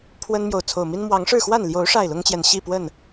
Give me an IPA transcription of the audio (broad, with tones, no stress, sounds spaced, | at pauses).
pʰ w ə˦ n m j o˨ ʊ̯ t͡sʰ o˨˩ ʊ̯ m i˦ n m w ɑ˨˦ ŋ ʂ ɻ̩˥˨ x w a˥˨ n l j o˨˦ ʊ̯ ʂ a˥˨ ɪ̯ l ʊ˦ ŋ t͡ɕ j ɛ˨ n ɕ i˥˨ p w ə˥˨ n